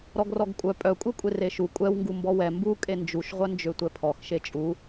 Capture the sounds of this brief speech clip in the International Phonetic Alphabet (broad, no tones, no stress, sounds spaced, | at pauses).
ɾ ɔ ɡ r ɔ ɡ kʷʼ œ pʼ œ kʷʼ e kʷʼ e r e ʃ u kʷʼ ɛ w ŋ ɡ u m b ɔ w ɛ m b u kʼ e n d͡ʒ u ʃ ʁʷ œ n d͡ʒ ø tʷ ɛ pʰ ɔ x ʃ e t͡ʃʼ u